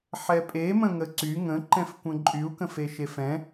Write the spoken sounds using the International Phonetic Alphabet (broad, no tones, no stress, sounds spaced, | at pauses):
ħ ɛ pʼ e m ə̃ ŋ ə ǀ y ŋ ə̃ ǃ ɛ̃ f kʷ ə̃ ǃʼ y u̯ k ə̃ f e ʃ e f ɛ̃